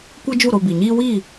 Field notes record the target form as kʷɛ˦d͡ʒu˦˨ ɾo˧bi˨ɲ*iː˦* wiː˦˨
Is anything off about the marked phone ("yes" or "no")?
no